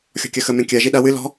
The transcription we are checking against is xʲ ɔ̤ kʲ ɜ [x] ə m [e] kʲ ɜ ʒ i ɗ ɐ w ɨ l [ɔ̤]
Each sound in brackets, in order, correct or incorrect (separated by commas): correct, incorrect, correct